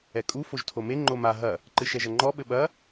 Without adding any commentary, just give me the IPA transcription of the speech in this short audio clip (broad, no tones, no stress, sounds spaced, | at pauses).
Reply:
ɛ kʼ u f o ʒ tʰ o m e ŋ͡ǃ o m a ɦ ɐ | ǃ ɨ ʃ ɛ ʒ ɐ ŋ͡ǃ ɔ ɓ ɘ ɓ ɐ